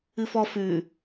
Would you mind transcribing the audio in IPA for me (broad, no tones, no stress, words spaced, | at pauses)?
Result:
ɨfɔ fʉ